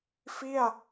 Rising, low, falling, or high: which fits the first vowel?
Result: falling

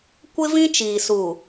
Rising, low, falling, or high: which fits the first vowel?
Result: high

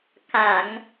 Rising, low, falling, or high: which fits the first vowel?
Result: low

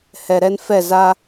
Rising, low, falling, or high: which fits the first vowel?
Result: low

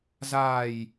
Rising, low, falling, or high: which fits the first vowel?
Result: low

